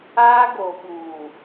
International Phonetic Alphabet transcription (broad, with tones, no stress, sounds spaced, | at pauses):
aː˦ ɡ o˨ ɓ uː˨